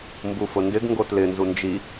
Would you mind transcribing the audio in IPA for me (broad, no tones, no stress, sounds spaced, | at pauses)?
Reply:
m b u f ʊ n d ɪ ɡ ŋ ɡ o t l ɪ n z u n d͡ʒ i